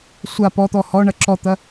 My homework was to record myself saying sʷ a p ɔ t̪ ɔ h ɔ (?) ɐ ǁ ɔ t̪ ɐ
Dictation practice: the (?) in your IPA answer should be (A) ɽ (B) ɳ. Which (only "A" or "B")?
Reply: B